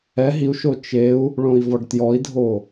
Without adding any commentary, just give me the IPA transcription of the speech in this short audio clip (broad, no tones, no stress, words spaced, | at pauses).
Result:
ɛ ɦiu̯ʃo t͡ʃeu̯ | ɭõi̯vɔɖtjɔi̯dʱo